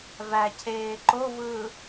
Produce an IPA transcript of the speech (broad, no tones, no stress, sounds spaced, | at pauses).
v æ cʰ eː ǃ o v ɯː